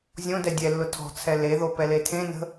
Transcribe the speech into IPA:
zʲ õ d ɛ dʲ ɛ lː ʊ tʰ ɔ̤ t͡sʰ ɛ l e ð o p ɛ l e tʰ ẽ n ə̤

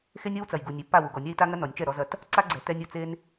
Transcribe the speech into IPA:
x e˦ nʲ ɔ˦ w t͡s ɐ˨ j ɡ u˨ nʲ e˨ pː a˦˨ w u˨ ɡ ɔ˨ nʲ a˦ i̯ t a˦ ŋ ɐ˦ n ɔ˨ nʲ t͡ʃ ɛ˦˨ ɾ ɔ˦ z ɐ˦ t | ǀ a˦ ɡ͡ǀ ɛ˨ t ɛ˦ nʲ u˨ t͡s e˦ n

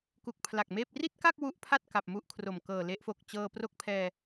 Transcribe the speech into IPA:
k u˨˩ k̚ pʰ l a˨˩ k̚ m eː˥˩ p̚ r i˥˩ t̚ k a˥˩ k̚ w u˦˥ ʔ pʰ a˥˩ t̚ k a˨˩ p̚ m u˥˩ ʔ kʰ r o˨˩ m k ɤː˨˩ l e˦˥ ʔ f o˨˩ k̚ t͡ɕ ɤː˧ p r o˥˩ k̚ pʰ ɛː˧

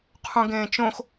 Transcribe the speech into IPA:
qʰ ũ ɡ ẽː t͡ʃ õ x

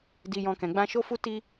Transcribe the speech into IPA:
d i˧ j ɔ̃˧ k ɛ̃˨ ɡ͡b ã˧ ʃ o˦ f u˦ t i˦

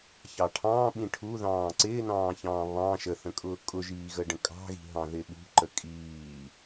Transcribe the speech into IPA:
ç ɑ ʈʰ ɑ̃ː ɓ ĩ ʈʰ u ð ɑ̃ː ǀ ɪː n ɑ̃ː ç ɑ̃ː β ɑ̃ ʃ ə θ ə̃ kʼ ʊː kʼ ʊ ʒ iː ɣ ə ɖ ə̃ kʼ ɑ̤ ɣ i̤ ɦ ɑ̃ ð ɪ ɓ ṳ ǃ ə kʼ iː

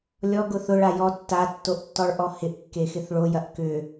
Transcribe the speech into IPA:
lʲ ɔ ɡ ʊ θ ʊ ɭ a j ɔ tː a tː o ʔ tː ɔ ɭ ʔ ɔ h ɪ ʔ kː e x ɪ θ ɭ o j ɐ ʔ k ʏ

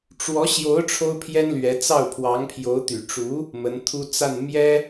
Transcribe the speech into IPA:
ʈ͡ʂ w ɔ˧˥ ɕ j o˧˥ ʊ̯ ʈ͡ʂʰ o˥ ʊ̯ pʰ j ɛ˥ n l ɥ ɛ˧˥ t͡s ɑ˥˩ ʊ̯ pʰ w ɑ˧˥ ŋ pʰ j o˧˥ ʊ̯ t̪ y˨˩ ʈ͡ʂ u˧˥ | m ə˧˥ n t̪ʰ u˥ t͡s a˥˩ n m j ɛ˥

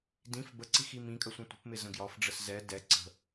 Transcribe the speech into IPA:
d ĩ f b ə ǀ i x i m ĩ kʼ ə sʷ ə̃ tʷ ə̤ p m ɪ z ə̃ ɡ j ɒ f ɖ͡ʐ ə s z ɛ d ɛ ǀ ə̤

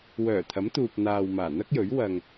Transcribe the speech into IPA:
w œː˨˩ t̪ʰ ɐ˨˥ m t̪ uː˨ p̚ n̪ aː˨ w m aː˨˩ n̪ ɐ˥ k̚ j ɵ˨˥ ɥ w ɐ˨ ŋ

